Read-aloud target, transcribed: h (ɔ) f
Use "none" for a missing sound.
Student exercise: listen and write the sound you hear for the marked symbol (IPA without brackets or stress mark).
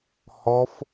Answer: ɔ